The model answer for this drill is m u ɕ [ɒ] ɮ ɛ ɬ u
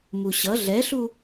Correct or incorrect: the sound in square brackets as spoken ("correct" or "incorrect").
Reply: incorrect